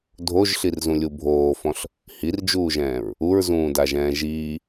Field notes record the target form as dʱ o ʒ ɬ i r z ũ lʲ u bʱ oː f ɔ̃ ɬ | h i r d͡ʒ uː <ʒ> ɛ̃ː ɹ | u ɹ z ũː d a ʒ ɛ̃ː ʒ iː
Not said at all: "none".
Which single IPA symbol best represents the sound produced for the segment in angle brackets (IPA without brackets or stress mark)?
ʒ